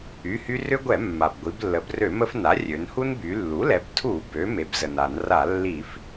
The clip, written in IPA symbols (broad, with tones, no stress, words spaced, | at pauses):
y˩˧˩hy˦ rʏ˦ɡʷɛ˧˩˧mːa˩b ɡʷi˩˧blːə˩˧brø˧˩˧ mə˦fna˩˥rʲø˩˧n hu˦nby˩˧lːu˩˥lɛ˩˧b tʰu˧˩˧bø˩˧ me˩˥bzə˩na˧˩˧n ra˧˩˧lːi˧˩˧f